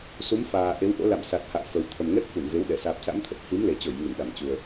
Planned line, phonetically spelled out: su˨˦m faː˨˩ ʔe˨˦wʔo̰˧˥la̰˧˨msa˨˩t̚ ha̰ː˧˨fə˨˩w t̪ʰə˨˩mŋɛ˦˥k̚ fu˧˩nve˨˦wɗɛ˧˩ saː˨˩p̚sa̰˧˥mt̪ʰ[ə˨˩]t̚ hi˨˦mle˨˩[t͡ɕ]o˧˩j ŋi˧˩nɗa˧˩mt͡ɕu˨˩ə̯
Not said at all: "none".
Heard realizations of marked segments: ə˨˩, t͡ɕ

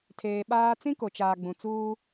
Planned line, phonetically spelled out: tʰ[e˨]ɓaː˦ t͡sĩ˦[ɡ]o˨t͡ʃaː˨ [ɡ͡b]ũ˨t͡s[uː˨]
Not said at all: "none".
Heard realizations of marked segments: eː˨, k, ɡ͡b, uː˦

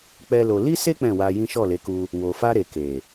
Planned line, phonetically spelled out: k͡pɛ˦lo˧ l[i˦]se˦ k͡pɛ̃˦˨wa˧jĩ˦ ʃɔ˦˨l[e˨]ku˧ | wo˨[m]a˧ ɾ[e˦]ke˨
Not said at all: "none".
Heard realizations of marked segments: i˦, e˨˦, f, e˨

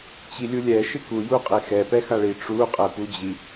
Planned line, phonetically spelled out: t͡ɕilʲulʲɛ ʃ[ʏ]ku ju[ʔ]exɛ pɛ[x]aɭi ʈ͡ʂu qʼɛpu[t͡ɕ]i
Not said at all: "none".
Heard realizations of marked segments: ɪ, qʼ, x, d͡ʑ

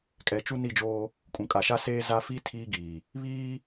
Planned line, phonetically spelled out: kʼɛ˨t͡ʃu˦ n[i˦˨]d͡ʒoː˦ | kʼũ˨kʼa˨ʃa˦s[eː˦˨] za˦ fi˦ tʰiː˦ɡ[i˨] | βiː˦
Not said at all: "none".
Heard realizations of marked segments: i˦˨, eː˦, iː˨

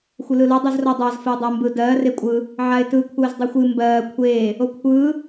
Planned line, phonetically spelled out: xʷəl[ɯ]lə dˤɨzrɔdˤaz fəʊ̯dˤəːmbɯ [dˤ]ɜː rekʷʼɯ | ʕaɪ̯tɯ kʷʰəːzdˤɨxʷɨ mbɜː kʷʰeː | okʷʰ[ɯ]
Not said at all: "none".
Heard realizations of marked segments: ɯ, d, ɯː

